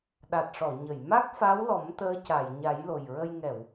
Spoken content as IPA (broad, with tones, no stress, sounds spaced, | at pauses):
ɗ a˨˩ t̚ ʂ ɔ˨˩˨ ɲ ə˨˩˨ j m a˦˥ k̚ f a˧˥ w l ɔ˨˩˦ m t̪ əː˧˥ c a˨˩˨ j ɲ a˨˩˦ j l o˨˩ j ɹ ə˧ j ŋ ɛ˨˩˨ w